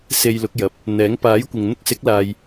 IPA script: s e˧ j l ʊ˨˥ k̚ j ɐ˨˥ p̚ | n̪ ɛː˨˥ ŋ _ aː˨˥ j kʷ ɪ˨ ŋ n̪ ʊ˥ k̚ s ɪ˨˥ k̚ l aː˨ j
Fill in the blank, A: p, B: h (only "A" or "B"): A